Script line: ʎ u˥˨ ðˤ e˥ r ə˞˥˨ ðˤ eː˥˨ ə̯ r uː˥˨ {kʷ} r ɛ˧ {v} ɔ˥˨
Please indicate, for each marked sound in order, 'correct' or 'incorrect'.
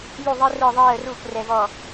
correct, correct

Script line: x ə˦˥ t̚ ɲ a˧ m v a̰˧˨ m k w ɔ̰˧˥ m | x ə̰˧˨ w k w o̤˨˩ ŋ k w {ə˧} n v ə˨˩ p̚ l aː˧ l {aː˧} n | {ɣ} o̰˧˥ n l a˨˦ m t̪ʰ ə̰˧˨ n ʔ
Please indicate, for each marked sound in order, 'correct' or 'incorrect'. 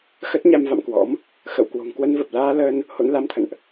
correct, incorrect, incorrect

